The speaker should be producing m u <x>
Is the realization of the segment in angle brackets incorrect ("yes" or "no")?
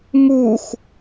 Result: no